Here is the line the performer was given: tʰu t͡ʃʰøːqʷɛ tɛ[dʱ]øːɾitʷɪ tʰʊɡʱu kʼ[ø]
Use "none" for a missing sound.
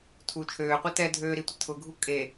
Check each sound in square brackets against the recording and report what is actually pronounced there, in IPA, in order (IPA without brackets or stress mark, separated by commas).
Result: dʱ, e